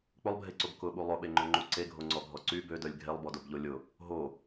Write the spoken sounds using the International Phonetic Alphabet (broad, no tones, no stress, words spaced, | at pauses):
k͡pʊlˠbʱeǀob kʊɓu lˠʊɓeŋ͡ǃøŋ͡ǃu ǀeɡʱoŋ͡ǀɔɡʱɔ ǀy bødœlʲ ɡʱelˠbɔdobʎo lʲʊ | ɦo